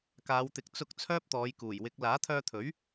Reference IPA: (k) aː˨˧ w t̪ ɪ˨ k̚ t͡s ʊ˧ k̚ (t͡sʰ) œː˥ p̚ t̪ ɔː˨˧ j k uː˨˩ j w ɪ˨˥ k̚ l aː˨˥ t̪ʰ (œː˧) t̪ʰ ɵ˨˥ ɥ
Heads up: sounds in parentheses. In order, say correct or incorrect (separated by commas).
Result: correct, correct, correct